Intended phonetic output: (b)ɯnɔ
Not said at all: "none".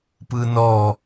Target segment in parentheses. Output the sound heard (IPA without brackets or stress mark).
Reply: p